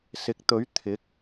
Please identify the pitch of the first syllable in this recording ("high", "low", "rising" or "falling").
rising